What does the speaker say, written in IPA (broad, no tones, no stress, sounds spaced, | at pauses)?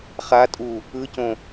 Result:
χ a tʼ u | ɯ c õ